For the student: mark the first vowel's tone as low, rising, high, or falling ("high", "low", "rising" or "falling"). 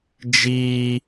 high